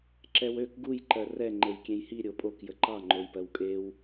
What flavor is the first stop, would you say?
click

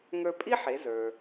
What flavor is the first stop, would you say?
ejective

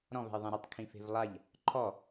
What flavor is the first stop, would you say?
plain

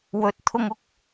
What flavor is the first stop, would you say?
plain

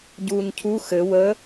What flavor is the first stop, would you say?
plain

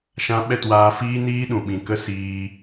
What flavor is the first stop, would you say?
implosive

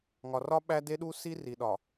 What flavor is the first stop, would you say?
implosive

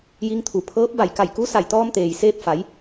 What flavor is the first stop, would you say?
aspirated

